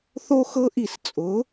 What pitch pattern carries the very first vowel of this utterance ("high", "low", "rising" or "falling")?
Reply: high